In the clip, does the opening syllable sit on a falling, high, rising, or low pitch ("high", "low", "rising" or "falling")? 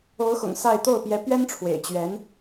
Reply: rising